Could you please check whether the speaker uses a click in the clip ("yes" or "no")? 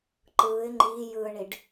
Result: yes